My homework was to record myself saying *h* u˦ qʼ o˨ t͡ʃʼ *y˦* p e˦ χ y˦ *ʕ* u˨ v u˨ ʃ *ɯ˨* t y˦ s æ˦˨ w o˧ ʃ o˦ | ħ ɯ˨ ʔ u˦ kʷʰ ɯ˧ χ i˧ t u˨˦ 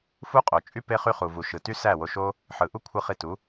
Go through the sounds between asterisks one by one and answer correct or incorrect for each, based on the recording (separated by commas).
incorrect, correct, incorrect, correct